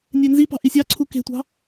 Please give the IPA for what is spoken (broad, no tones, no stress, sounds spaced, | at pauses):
nʲ e n z i p ɑ̤ ʔ i sʲ ɑ ǀʰ u k e̤ tʷ ɑ̤